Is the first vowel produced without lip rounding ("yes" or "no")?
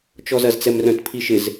no